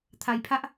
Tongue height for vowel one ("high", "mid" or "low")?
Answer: low